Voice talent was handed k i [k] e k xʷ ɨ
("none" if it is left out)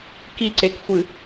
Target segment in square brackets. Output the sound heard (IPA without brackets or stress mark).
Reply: ǀ